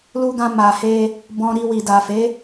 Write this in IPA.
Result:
l u˧ ɡ ã˧ m a˨ h e˧ | b ɔ̃˧ ɾ i˧ w i˨ d a˨ f e˨˦

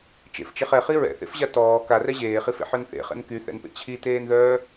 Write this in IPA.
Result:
t͡ʃ ḛ f t͡ʃ e χ ɛ χ i ɹ ɛ̰ θ ḛ f ʑ a t ɔː k a r ɛ ʑ eː χ i f ḛ ħ œ n θ ḛ χ ɛ̰ n k y θ ɛ̰ n p ḛ t͡ɕʰ i t eː n ð œː

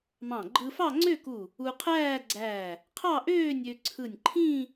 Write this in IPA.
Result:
m ɑ̃˧˩ ɡ͡ǃ ɯ˧ f ɑ˥˧ ŋ͡ǀ ø˥˧ k u˧˩ | u˧ qʰ æː˥˧ ɡ͡ǀ æː˧˩ | qʰ ɑ˥˧ ʔ øː˥˧ nʲ ø˧ ǀʰ ɯ˧˩ nʲ ǃʰ ĩː˥˧

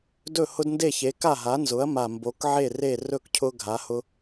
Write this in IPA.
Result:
d ɵ˥˩ h ʊ˦ d n d e˥˩ ç e˩˥ k a˥˩ ɦ a˩˥ n z ʊ˩˥ ɐ̯ m a˨˩ m b o˩˥ k ʕ e˥˩ r e˥˩ r ɵ˥˩ k cʰ ʊ˦ ɡʱ a˩˥ h ʊ˦

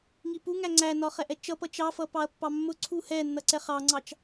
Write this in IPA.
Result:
ŋ i p u ŋ æ ŋ͡ǀ æ n ɒ χ ɛ ʔ ɛ t͡ʃ ʌ p ʌ t͡ʃ ɑ f ʌ p ɑ ɐ̯ pː ɑ mː ʊ ǀʰ u h ɛ nː ʌ ǀ ɛ χ ɑ ŋ͡ǀ ɑ t͡ʃ

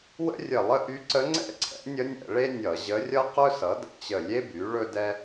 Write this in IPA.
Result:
w ə̰˥ rʲ ə˧˩ lˠ ə˥ ʔ y˧˥ ǀ ə˧˥ ŋ͡ǀ ɛ̰˥ ǀʰ ɛ̰˩˥ nʲ ə˧˥ nʲ ɛ̰˧˩˧ ɭ e˥ nʲ ʌ˧˩˧ ʑ ə˧˥ rʲ ʌ˥ q ɵ˥ s ʌ˩˥ d ə̰˧˩ t͡ɕ ə˧˩ lʲ e˥ b y˩˥ ɭ ɵ˥ d ɛ˥

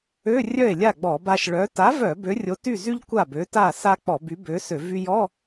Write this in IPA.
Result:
ø˧˥˧ rʲ œ˥˩ e̯ lʲ a˥˩ ɡ͡b ɔ˧˩˧ b a˧ ʃ ɭ œ˨˥ t a˨˥ v œ˧˩˧ b ø˨˥ rʲ o˨˥ t y˥˩ z y˥ ʎ kʷ a˥˩ b ø˨˥ t a˥˩ s a˥ k͡p ɔ˧˩˧ b y˨˥ b ø˨˥ s ø˧˩˧ v y˧ j ɔ˧˥˧

